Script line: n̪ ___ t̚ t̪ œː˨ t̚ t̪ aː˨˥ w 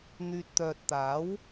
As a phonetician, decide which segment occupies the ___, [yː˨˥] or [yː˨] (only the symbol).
yː˨